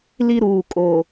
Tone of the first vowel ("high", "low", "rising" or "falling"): high